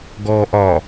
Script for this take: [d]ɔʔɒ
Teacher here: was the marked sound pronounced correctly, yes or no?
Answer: no